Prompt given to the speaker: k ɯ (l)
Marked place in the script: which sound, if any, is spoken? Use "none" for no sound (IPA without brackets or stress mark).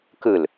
l